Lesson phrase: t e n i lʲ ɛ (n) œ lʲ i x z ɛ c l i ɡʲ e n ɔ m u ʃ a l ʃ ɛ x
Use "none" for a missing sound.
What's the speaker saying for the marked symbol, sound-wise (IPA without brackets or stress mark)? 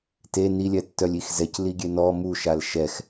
tː